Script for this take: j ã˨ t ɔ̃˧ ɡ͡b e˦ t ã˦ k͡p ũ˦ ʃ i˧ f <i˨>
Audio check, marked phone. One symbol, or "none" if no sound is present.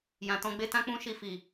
i˨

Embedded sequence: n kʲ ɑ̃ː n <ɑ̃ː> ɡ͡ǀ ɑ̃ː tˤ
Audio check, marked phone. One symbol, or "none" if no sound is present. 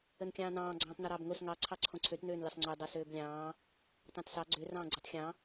ɑ̃ː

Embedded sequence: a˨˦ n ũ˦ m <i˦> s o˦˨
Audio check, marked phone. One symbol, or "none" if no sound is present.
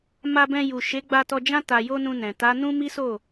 i˦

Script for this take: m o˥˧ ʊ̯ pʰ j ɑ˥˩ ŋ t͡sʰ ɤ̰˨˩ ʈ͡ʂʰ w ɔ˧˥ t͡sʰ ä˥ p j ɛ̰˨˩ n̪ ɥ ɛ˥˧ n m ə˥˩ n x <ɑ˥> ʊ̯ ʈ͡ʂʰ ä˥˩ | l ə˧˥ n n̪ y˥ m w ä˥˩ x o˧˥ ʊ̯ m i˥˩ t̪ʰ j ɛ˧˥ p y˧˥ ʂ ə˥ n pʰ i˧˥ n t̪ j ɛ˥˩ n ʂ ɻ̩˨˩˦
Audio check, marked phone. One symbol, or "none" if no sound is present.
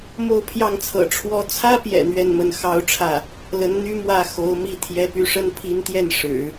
ɑ˥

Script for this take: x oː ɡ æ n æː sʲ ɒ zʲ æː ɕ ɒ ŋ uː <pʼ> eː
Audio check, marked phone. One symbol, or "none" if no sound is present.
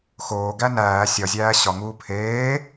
pʰ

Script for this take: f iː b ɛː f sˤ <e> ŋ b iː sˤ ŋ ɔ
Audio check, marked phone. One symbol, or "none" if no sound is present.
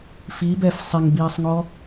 e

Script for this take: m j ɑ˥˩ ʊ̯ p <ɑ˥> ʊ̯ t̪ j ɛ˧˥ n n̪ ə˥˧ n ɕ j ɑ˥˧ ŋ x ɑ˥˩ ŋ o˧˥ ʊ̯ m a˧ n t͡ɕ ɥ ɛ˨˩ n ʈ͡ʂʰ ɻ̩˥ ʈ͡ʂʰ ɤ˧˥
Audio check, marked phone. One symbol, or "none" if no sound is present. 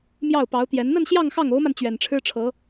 ɑ˧˥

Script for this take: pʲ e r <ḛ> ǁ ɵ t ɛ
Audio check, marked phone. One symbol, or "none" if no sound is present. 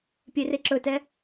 e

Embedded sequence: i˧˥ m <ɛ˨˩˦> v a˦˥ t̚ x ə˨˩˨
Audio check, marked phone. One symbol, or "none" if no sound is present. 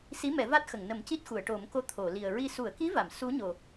ɛ˨˩˦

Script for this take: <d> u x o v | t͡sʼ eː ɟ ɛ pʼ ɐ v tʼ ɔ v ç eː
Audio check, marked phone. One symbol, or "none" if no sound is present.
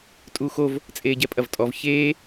tʼ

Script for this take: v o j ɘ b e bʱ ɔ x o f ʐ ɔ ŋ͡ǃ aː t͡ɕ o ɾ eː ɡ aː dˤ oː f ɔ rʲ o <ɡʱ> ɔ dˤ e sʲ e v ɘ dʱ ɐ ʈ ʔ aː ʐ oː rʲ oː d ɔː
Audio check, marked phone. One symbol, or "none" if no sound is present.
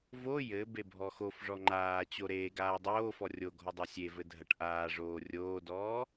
ɡʱ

